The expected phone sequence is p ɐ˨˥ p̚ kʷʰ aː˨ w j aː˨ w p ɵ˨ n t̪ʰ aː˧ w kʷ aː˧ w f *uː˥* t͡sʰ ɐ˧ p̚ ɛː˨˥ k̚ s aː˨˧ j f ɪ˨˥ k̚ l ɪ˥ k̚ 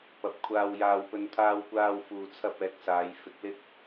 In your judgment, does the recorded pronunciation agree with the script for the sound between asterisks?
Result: no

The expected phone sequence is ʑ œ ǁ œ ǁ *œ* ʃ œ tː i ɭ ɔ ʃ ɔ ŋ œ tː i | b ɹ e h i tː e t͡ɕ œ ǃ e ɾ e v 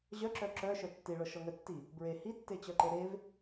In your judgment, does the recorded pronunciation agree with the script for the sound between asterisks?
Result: yes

